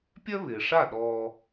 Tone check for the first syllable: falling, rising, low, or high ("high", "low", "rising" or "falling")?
high